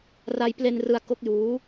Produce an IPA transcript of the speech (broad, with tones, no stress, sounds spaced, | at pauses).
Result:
r a˧ j p l e˧ n r ɯ˧ a̯ k o˦˥ k̚ j uː˦˥